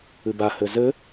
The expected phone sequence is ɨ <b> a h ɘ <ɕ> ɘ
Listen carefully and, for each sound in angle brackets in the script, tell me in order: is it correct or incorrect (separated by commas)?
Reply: correct, incorrect